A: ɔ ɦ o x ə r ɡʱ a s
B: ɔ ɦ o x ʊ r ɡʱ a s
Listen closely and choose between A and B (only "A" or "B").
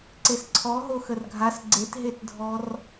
A